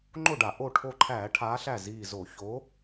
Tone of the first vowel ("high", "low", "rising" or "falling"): falling